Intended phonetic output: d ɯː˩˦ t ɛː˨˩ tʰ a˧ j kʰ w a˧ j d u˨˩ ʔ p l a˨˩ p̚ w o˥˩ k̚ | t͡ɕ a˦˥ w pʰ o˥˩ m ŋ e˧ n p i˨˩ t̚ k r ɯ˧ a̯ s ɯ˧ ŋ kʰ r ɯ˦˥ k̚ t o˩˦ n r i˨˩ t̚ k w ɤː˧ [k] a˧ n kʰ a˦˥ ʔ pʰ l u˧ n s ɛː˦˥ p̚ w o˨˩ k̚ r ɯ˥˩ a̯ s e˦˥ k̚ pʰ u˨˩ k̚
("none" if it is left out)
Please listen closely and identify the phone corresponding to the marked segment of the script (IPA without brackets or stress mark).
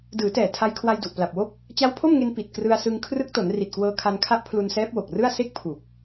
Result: kʰ